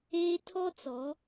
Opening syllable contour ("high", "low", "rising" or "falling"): high